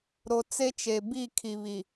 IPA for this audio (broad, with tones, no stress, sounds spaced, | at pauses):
ɾ o˨ t͡s e˦ t͡ʃ e˨ b i˦˨ kʰ i˨ β i˨